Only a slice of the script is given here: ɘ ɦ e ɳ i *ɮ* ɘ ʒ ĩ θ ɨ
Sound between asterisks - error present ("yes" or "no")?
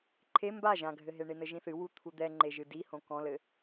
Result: yes